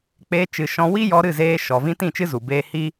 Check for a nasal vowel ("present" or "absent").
present